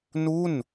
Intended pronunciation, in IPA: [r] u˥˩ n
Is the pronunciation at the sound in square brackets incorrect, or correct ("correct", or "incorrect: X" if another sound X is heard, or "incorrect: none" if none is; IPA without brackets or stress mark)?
incorrect: n